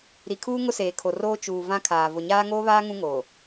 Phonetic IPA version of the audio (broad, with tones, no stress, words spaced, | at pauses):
ɾi˨kʰuː˦ ŋʊ˦seː˨kʰo˨roː˦ t͡ʃuː˨ vã˦kʰaː˨ vʊ˨ɲaː˦ ŋoː˦βaː˦ ŋũ˦ ŋoː˨